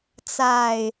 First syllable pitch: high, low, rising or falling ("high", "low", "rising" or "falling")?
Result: low